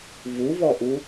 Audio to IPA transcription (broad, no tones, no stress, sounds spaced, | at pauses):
v u v ɔ ʔ u